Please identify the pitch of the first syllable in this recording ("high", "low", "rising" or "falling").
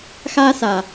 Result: high